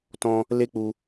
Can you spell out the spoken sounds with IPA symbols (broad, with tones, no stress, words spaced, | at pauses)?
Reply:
tɔ̃˦ | le˦k͡pu˧